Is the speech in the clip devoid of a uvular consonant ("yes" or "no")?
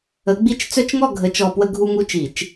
yes